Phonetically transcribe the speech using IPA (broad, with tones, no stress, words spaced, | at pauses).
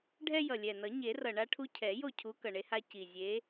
ɖʱɛ˦jʌ˨˩lʲɛ˨˩nʌ˨˩˦ ɲe˨˩˦rʌ˨˩ɳa˦ ʈʰu˦cʰɛ˨˩˦ jo˥˩cʰu˨˦ kʌ˨˩ɳe˦ha˦ ci˨˩ zʲe˨˦